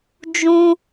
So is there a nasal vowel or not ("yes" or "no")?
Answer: yes